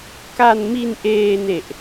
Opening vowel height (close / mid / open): open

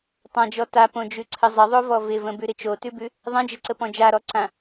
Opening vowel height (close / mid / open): open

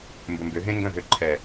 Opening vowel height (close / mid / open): mid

